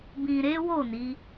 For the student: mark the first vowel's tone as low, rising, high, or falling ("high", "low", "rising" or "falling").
low